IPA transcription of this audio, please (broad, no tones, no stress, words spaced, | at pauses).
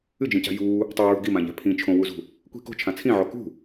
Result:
ɨd͡ʒĩca̤ juː | tˤoɹṳ ɡimãʎa̤ pʰĩ t͡ʃʰõwuzṳ | kʷi̤ ko̤t͡ʃʰã t͡sʰĩʕo kṳ